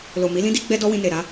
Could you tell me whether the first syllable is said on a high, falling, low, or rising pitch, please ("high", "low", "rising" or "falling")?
low